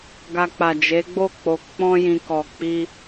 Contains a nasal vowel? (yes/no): yes